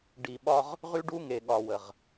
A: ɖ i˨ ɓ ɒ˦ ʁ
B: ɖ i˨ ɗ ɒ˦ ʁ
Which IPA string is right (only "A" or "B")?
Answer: A